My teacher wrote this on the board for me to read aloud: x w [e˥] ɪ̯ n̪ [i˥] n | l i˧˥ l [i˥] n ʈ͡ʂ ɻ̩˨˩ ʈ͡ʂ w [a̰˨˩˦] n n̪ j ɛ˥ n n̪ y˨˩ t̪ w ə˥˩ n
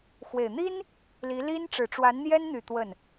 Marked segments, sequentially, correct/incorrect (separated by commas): incorrect, correct, correct, incorrect